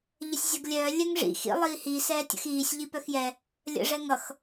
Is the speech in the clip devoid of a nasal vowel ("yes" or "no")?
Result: yes